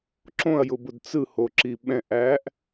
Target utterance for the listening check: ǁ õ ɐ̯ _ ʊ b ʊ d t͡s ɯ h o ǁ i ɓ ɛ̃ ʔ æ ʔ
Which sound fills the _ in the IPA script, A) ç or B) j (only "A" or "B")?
B